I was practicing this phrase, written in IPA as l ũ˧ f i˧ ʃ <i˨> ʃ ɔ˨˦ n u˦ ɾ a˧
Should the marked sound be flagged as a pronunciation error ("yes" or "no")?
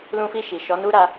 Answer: no